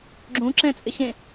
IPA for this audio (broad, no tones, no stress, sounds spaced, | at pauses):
ɡ͡ǁ ũ ǁ ɛ̃ t͡sʼ ɪ ɕ ẽ